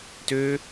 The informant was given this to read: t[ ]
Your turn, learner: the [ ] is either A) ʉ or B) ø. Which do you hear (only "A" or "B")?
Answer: B